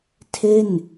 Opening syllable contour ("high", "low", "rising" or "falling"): falling